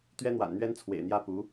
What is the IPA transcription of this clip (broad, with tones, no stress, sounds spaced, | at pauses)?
t̪ ɥ ɛ˥ n̪ w a̰˨˩ n n̪ ɥ ɛ˥ n t͡sʰ w ḛ˨˩ ɪ̯ n̪ j ä˥ p u˧˥